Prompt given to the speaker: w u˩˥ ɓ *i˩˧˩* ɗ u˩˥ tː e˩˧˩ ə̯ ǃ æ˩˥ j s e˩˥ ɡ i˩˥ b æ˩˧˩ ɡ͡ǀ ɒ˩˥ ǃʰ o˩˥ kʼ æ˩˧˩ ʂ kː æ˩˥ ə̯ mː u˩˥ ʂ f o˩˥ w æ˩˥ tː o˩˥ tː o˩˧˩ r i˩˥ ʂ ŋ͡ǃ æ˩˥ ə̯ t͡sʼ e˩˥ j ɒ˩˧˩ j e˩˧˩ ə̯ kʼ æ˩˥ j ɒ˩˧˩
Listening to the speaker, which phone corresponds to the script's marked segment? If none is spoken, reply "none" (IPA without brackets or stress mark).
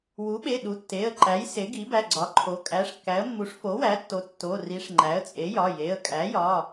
e˩˧˩